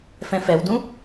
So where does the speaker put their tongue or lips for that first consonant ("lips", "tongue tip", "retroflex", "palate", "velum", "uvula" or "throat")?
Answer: lips